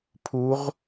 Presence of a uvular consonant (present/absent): present